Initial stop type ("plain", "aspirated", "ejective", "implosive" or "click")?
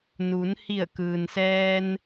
plain